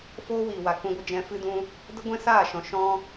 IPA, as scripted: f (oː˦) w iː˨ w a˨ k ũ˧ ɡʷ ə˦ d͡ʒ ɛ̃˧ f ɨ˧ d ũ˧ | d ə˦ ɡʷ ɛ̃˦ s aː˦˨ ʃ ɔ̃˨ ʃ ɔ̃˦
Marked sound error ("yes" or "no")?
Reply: no